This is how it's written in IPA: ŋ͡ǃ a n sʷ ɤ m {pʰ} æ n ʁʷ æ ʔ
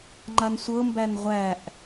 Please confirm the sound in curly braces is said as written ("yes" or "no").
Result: no